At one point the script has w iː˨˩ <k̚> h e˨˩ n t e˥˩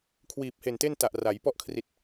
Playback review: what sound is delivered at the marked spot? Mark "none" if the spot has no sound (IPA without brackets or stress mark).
p̚